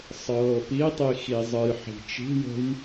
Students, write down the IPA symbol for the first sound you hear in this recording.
sˤ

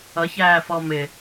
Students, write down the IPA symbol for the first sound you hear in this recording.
ʌ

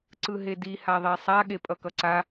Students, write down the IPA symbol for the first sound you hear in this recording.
ǀ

